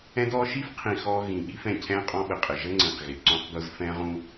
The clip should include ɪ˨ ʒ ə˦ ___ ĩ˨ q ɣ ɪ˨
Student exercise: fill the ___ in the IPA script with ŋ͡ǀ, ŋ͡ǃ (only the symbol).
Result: ŋ͡ǀ